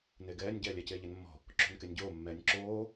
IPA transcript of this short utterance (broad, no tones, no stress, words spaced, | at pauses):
neɡɛːnʲ ɟɛːlʲɛc eːʎenmːɔ̤ | ǁo̤nkenʲɟoː mːɛːnʲǁoː